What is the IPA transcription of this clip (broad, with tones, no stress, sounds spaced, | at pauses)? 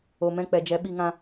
o˨ m ɛ̃˦˨ k͡p ɛ˨ d͡ʒ ɛ˨˦ ɓ i˧ ŋ ã˧